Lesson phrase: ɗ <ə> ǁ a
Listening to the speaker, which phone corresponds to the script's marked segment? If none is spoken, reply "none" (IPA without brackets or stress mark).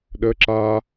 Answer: ə